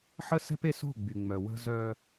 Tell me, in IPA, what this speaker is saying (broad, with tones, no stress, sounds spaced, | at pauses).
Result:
ħ ə˦ s ɛ̤˦ p e˦ s o̤˦˨ ɡ͡b y˨ ŋ͡m œ˨ w ə̤˦ z œ˦